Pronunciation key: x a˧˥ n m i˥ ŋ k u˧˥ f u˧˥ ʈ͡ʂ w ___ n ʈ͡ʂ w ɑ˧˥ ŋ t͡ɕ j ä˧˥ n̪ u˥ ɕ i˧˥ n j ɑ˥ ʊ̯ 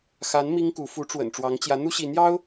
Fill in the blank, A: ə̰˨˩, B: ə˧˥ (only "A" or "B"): A